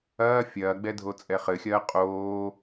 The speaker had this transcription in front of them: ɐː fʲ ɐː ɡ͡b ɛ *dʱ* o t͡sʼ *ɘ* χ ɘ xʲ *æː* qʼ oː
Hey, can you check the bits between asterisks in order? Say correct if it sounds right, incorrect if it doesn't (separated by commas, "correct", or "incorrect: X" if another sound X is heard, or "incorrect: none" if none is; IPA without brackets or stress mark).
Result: correct, incorrect: ɛ, incorrect: ɐː